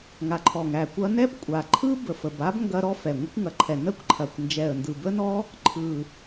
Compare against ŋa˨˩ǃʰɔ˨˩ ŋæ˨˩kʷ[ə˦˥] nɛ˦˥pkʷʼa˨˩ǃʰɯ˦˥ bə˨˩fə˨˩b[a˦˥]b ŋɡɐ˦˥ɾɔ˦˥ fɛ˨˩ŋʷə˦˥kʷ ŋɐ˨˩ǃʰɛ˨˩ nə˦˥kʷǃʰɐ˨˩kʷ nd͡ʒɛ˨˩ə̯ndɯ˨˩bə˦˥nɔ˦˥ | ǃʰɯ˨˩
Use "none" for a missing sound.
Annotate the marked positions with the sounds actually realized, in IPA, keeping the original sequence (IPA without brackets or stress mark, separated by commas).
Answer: ɐ˦˥, a˦˥